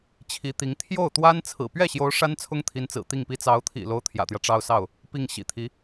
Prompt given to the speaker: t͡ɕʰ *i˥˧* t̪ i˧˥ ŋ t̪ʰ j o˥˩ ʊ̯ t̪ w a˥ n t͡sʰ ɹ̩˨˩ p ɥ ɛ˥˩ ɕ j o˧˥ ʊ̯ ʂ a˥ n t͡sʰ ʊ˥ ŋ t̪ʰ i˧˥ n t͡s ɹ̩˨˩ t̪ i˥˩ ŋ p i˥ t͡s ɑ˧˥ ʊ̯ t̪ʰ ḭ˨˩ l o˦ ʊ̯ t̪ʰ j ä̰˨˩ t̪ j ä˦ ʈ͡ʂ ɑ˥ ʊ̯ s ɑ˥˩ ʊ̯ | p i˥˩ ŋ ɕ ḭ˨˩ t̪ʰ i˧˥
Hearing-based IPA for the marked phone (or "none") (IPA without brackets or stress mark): i˧˥